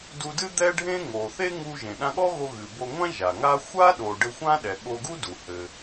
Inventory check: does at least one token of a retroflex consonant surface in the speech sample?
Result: yes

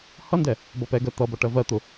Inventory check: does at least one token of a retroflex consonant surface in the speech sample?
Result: yes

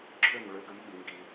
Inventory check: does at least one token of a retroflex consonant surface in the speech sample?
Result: yes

